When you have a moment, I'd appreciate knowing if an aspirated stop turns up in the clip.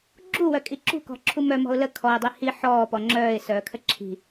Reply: yes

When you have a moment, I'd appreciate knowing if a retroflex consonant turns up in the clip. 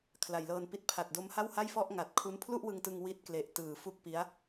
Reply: no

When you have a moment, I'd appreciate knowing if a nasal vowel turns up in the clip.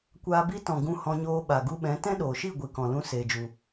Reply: yes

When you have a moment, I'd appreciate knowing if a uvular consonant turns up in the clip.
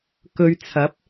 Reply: no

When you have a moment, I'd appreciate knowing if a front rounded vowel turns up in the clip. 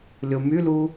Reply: yes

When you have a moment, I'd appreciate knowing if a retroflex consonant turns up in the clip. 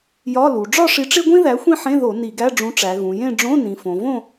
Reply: yes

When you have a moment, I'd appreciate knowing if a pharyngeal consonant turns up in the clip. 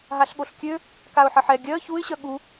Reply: yes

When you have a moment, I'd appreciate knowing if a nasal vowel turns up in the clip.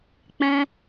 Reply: yes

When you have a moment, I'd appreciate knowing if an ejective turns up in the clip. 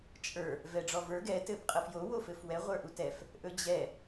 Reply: yes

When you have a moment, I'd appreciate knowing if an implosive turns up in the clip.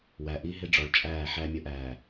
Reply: no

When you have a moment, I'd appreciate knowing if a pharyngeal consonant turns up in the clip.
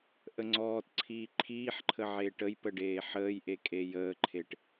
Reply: yes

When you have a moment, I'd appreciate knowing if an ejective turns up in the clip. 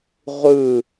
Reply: no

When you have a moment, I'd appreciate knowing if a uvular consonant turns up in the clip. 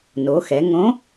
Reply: no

